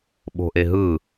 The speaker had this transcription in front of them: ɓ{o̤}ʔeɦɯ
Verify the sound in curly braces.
correct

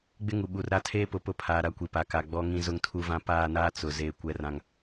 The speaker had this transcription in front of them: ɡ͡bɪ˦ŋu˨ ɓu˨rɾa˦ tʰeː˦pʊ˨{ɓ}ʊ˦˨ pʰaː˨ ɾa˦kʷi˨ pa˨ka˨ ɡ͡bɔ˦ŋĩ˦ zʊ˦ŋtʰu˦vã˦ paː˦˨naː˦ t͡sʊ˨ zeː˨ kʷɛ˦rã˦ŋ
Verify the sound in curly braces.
incorrect: p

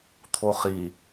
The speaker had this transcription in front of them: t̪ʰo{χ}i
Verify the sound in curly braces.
correct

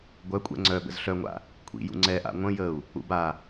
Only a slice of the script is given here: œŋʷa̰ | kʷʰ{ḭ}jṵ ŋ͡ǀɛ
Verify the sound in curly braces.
correct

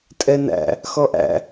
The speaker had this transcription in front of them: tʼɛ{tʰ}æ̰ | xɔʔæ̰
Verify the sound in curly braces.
incorrect: n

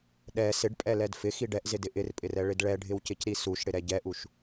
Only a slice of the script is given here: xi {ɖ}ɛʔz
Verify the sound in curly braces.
correct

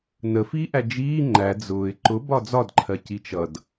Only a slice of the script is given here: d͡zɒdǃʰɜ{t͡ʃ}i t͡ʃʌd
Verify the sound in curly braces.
incorrect: c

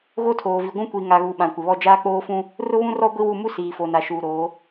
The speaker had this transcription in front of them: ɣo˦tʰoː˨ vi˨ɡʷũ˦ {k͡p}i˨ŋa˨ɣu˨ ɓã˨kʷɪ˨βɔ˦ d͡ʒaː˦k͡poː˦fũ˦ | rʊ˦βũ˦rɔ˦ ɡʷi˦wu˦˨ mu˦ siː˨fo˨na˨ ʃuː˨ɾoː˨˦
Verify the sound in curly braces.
incorrect: kʷ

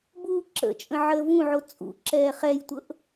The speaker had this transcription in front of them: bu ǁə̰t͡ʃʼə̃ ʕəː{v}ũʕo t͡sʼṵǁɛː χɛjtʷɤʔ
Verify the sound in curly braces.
correct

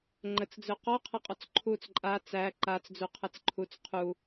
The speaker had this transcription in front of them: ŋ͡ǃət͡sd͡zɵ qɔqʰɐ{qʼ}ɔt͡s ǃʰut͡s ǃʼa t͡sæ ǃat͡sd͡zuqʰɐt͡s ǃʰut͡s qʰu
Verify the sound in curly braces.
correct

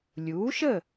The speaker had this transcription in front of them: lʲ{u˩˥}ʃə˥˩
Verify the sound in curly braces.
correct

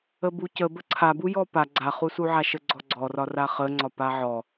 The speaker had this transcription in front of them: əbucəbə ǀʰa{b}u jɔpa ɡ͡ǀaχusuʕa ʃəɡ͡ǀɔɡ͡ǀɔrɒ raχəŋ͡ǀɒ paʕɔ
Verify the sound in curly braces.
correct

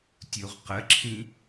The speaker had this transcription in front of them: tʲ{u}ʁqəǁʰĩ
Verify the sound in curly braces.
correct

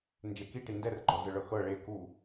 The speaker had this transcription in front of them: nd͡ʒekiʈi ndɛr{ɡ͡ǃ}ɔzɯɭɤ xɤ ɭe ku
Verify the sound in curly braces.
correct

